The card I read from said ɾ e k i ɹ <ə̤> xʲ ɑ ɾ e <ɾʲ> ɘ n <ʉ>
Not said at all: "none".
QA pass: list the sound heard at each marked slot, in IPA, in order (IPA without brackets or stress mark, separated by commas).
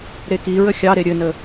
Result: ə, ɾʲ, ə